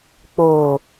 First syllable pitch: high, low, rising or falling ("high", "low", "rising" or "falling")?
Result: low